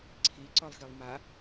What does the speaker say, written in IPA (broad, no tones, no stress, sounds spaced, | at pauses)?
ǀʰ i ǀ ɔ lˠ x i lˠ m a